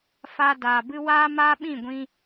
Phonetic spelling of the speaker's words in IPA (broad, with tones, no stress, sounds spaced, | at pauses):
f aː˧ d aː˨ b ɨ˦ w aː˦ m aː˦ ɓ ĩ˦˨ ɡʷ ĩ˧